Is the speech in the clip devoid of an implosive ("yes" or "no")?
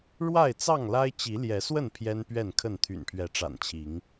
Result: yes